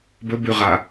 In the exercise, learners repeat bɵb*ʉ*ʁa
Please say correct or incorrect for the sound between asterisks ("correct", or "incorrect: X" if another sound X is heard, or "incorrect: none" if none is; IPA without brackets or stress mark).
correct